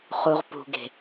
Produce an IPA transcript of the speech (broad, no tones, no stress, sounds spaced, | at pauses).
χ u ʁ p ṳ ɡ e̤